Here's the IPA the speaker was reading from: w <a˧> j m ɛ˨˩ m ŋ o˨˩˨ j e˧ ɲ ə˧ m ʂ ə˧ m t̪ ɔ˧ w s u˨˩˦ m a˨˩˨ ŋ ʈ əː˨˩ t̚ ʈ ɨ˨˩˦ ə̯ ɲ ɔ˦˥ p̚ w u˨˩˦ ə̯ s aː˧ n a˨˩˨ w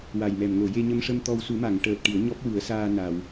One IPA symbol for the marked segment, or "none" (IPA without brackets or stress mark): a˨˩